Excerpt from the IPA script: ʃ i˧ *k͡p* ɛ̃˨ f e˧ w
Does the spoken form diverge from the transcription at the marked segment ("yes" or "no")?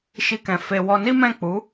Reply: yes